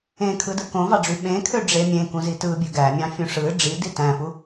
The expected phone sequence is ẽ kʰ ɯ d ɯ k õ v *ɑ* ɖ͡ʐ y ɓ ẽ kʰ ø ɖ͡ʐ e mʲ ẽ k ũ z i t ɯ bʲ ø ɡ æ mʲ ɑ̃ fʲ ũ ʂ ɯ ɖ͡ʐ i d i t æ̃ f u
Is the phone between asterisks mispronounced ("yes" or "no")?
no